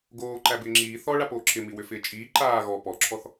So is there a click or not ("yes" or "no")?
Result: yes